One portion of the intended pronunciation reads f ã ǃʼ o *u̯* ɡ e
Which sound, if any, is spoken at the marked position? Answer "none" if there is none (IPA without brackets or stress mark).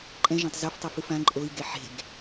i̯